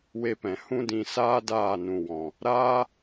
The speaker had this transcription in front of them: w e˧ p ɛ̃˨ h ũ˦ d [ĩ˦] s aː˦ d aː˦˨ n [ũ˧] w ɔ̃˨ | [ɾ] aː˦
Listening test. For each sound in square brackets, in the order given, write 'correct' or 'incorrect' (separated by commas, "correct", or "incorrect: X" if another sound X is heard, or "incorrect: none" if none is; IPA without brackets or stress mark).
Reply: incorrect: ĩ˧, incorrect: ũ˨, correct